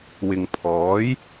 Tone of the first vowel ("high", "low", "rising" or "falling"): low